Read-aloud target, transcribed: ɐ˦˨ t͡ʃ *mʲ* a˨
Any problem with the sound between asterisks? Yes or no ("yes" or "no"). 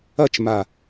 yes